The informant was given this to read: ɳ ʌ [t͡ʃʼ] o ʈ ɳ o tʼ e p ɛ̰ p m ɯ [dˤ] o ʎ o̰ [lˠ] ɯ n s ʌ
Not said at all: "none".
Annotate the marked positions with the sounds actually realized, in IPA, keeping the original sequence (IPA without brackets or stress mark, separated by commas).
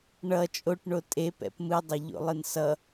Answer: t͡ʃʼ, dˤ, lˠ